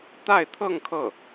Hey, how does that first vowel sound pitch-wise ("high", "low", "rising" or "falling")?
falling